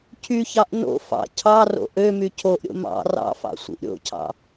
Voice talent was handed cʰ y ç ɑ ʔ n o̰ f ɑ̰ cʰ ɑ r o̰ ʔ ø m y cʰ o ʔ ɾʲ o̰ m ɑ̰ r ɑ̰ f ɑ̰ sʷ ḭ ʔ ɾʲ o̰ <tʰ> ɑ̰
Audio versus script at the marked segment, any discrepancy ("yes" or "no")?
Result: yes